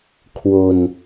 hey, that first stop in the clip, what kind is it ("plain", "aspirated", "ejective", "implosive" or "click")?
aspirated